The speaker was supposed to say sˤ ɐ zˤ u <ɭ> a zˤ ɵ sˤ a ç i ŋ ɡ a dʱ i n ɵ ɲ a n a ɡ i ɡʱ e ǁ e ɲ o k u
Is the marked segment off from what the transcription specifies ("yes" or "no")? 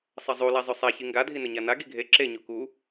yes